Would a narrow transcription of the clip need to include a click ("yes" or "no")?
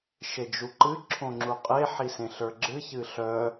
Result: yes